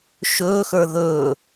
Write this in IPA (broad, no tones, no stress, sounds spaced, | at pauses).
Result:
ʃ ɵː x ə˞ ð ɵː